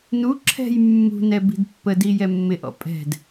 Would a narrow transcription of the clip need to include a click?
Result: yes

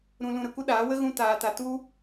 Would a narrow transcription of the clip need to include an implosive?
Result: yes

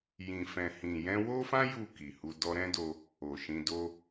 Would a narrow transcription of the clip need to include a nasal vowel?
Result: yes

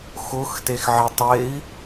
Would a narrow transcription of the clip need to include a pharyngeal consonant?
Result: yes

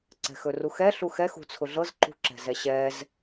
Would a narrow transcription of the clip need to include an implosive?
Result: no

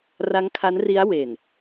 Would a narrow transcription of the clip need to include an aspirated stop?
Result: yes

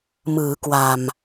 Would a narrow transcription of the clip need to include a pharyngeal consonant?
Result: no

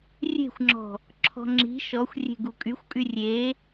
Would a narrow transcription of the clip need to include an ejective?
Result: yes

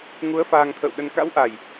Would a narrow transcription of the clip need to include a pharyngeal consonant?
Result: no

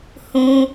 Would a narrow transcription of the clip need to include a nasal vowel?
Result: yes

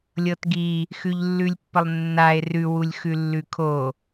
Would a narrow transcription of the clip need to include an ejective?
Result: no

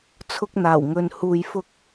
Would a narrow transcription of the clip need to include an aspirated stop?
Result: yes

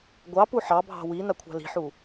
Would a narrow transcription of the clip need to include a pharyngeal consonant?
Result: yes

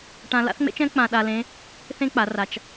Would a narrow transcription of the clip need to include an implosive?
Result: yes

